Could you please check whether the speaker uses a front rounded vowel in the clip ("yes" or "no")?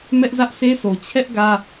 no